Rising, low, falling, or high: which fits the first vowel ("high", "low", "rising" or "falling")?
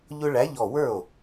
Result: high